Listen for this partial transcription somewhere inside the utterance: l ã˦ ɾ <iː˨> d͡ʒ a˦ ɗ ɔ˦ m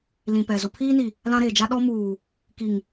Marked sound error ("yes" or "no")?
yes